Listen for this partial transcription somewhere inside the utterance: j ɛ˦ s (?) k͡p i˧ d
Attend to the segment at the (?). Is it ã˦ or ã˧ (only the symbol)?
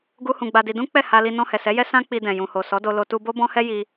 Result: ã˦